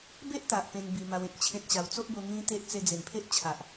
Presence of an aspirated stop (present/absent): present